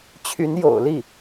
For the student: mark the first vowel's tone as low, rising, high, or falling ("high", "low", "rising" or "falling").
rising